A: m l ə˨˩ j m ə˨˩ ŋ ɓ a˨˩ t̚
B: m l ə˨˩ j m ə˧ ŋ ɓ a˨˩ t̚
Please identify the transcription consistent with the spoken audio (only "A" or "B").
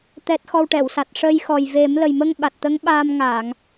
B